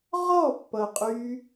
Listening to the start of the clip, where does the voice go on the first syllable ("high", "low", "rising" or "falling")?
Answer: falling